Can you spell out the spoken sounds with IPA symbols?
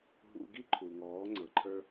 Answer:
ɦ ṵ˧ ɡ i˦ ǃʰ u˨ ŋ ɔː˨˦ ŋ͡ǀ ɤ˨ ǃʰ ə˞˦

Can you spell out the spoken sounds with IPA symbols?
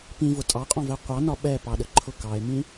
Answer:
p ĩ v ʊ tʼ ɑ qʼ ɔ̃ v ɛ qʷ ɑ n ɒ ɓ ɛ p ɑ ɗ ə ǃʰ ʊ k ɑ e̯ m ĩ

